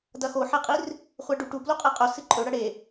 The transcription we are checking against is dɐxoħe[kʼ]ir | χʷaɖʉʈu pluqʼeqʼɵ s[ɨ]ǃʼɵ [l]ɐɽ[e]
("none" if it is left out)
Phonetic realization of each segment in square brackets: qʼ, ɨ, ɽ, e

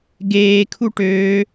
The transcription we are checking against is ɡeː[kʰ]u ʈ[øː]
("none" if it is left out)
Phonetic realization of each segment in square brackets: kʰ, øː

